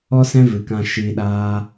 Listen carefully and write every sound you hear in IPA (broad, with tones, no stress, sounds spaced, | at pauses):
ɔ˦ s ɛ̃˦ v ɨ˨ k ã˧ ʃ iː˧ ɗ aː˦